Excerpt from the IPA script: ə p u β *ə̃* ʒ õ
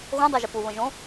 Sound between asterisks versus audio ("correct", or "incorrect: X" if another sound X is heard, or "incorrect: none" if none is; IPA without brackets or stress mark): correct